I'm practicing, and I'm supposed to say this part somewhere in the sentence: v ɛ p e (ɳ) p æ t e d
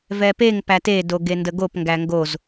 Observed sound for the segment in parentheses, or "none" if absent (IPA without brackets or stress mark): ŋ